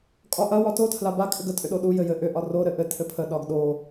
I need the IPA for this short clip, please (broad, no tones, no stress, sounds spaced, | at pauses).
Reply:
kʼ ɒ ʔ ɐ w ɒ t o tʰ l a b a kʼ ʏ ɡ ə tʼ ʏ ɗ o ɗ u j ɘ j ɘ ʔ ʏ ʔ ɒ r o ɾ ɘ ʔ ɘ tʰ ɘ pʰ ə ɗ ɒ ɡ ɗ o